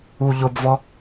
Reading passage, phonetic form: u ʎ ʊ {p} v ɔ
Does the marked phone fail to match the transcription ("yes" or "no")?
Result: yes